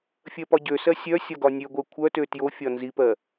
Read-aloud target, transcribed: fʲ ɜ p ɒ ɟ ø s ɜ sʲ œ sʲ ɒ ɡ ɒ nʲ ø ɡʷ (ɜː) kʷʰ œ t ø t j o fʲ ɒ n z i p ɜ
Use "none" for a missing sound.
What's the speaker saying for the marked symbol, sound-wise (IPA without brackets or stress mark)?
ɜ